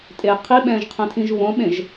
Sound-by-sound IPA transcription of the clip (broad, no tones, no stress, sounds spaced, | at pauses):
tʼ e qʰ i ɓ ɛ̃ː ʒ qʰ ɛ̃ tʰ ĩ ʒ β õ ɓ ẽ ʒ